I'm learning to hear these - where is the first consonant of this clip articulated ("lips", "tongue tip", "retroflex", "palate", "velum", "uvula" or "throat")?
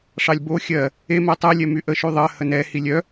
retroflex